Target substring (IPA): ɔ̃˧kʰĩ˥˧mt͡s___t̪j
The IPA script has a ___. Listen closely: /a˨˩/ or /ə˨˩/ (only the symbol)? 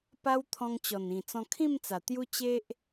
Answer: a˨˩